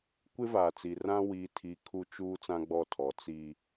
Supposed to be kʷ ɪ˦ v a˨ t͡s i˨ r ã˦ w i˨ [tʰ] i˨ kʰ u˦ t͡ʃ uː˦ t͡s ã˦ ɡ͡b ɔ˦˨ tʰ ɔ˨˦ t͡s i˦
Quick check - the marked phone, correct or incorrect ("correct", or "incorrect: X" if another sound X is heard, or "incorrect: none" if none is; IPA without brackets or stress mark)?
correct